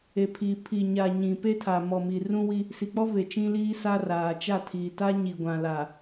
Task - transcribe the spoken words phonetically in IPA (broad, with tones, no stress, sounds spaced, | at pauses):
e˨ pʰ iː˨ pʰ i˨ ɲ a˨ ɲ ĩ˨ p e˦ tʰ a˨ m ɔ˨ m i˨ r ũ˦ w i˦ | s i˨ k͡p ɔ˦ v e˨ t͡ʃ ĩ˦ l iː˦ s a˦ r aː˨ t͡ʃ a˦˨ tʰ iː˨ t a˦ ɲ i˨ ɡʷ ã˨ l a˨